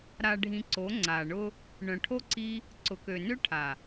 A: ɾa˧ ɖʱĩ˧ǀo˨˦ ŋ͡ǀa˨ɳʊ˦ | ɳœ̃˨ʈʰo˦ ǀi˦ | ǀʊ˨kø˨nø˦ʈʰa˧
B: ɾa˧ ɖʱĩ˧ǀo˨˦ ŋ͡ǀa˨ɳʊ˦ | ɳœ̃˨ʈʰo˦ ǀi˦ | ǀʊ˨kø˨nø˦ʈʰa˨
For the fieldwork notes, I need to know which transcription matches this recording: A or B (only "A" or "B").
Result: B